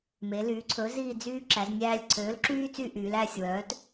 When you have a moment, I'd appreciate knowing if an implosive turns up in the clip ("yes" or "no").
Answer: no